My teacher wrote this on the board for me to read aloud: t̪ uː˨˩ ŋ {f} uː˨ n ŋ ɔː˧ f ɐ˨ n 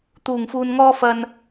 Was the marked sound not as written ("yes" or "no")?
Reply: no